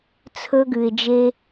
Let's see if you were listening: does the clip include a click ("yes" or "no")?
no